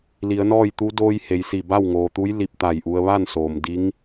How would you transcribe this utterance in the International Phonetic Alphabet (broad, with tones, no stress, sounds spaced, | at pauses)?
l i˩˧ ə̯ n ɔː˥˨ j t̪ u˧˥ d oː˧ j h e˩ j s i˧˩ b a˥˨ w ŋ oː˩ t̪ u˧˥ j l i˧ p̚ t̪ a˧˩ j ʔ u˧ ə̯ ʋ a˥˨ n s oː˩ m d i˧˥ ŋ